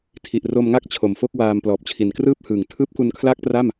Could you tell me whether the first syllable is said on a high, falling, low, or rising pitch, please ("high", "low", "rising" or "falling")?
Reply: low